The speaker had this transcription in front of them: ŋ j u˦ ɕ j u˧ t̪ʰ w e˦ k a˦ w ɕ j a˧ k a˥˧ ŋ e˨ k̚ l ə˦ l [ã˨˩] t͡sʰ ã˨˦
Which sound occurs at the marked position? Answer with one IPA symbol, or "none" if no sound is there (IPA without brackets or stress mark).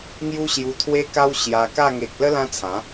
ã˦